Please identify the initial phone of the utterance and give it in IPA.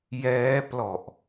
j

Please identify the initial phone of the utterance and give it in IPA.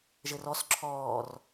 ʒ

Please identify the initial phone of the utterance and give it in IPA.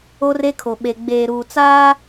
o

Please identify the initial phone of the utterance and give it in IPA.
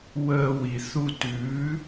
w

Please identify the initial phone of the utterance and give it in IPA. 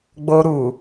ɡ͡b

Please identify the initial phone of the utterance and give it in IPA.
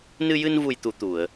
n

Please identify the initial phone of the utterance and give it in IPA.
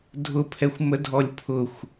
dʱ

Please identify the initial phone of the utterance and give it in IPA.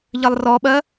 ʎ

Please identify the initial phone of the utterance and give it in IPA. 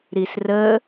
ɾ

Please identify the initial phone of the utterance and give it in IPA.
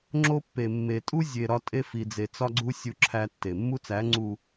ŋ͡ǁ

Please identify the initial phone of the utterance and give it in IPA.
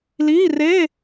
l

